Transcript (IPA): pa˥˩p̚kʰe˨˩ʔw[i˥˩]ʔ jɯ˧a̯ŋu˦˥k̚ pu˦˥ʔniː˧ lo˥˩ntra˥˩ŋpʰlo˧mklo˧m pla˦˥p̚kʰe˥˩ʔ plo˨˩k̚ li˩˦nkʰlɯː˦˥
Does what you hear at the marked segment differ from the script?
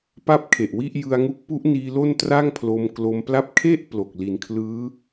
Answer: no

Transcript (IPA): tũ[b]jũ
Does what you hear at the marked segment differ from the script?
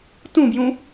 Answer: no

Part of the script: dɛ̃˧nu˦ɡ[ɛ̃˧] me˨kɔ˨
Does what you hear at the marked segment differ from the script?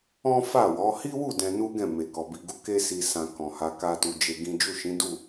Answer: yes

